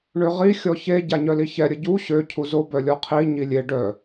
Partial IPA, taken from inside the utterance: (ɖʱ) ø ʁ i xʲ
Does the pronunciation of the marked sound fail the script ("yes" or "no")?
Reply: yes